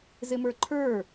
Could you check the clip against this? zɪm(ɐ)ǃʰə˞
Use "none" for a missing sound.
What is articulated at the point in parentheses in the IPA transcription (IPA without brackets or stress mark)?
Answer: ə˞